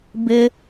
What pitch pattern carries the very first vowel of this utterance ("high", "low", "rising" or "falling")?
high